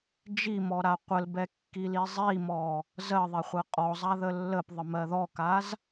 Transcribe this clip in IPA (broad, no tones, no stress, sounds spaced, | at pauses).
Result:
d͡ʒ i m ɔ ɾ a qʷ ə l b ɛ kː i l i zˤ i m ɔ | z ɜ ðˤ ɛ χʷ ɜ qʼ ɔ zˤ a ð ə lː ə p ðˤ ə m ɜ ð ɔ k a z